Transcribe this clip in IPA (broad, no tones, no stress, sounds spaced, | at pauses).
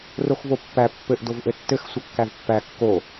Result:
r o x v o pː æ pː ɘ ʔ d o v ʔ ɘ tː ɘ x sʷ ɘ kː æ v pː æ kː o